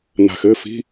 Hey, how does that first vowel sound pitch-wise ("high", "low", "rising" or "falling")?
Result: low